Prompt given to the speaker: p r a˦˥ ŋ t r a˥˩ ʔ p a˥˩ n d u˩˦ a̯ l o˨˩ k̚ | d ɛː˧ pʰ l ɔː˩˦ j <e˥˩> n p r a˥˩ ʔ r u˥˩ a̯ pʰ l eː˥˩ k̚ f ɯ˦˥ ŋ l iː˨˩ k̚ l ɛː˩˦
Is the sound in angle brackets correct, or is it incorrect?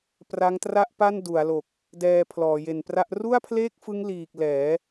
incorrect